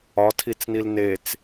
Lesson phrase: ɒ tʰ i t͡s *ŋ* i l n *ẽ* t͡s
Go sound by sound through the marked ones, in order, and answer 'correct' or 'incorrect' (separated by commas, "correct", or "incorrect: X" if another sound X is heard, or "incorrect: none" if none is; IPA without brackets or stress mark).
incorrect: n, incorrect: e